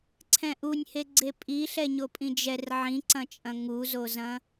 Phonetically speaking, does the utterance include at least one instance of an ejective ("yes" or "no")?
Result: yes